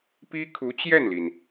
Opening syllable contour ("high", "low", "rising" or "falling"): high